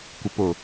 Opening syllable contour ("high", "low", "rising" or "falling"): low